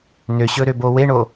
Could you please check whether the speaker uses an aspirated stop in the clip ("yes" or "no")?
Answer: no